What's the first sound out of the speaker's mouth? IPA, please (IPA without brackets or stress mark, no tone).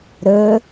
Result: ɾ